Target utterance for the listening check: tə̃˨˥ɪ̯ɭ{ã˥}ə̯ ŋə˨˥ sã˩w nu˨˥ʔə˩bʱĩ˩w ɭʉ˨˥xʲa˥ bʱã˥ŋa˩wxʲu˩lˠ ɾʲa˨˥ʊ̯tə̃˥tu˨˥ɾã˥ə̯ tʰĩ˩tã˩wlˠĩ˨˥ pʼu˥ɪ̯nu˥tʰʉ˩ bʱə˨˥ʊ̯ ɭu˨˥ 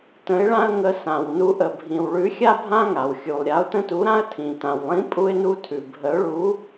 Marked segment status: correct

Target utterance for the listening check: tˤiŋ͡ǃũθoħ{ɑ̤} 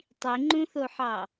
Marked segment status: incorrect: ɑ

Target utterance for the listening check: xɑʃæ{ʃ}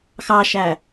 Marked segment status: incorrect: none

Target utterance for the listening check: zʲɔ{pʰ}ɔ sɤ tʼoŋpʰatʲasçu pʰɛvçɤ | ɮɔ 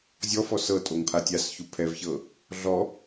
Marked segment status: incorrect: f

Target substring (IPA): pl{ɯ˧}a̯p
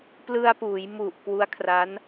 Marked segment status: correct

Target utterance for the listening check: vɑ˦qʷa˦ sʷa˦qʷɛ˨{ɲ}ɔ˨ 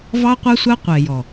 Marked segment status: incorrect: j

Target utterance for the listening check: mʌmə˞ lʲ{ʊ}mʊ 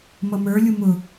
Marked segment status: incorrect: u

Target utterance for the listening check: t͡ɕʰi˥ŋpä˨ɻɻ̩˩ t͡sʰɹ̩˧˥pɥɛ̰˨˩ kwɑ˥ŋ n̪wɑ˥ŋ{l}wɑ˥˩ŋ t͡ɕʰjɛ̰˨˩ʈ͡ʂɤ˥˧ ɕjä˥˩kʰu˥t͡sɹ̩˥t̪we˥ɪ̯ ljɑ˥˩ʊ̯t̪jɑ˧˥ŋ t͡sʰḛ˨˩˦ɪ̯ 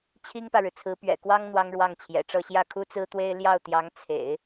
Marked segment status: incorrect: ɻ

